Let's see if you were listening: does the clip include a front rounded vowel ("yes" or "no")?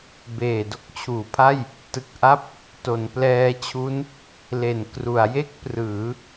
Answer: no